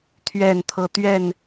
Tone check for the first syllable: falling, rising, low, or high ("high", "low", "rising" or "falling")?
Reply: falling